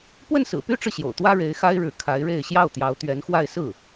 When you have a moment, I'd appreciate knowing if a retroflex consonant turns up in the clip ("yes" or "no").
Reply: yes